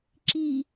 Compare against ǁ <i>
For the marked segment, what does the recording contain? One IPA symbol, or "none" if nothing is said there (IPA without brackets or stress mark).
i